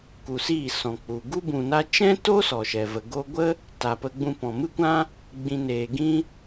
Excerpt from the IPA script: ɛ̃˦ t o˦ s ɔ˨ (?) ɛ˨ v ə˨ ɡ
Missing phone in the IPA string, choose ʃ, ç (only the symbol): ʃ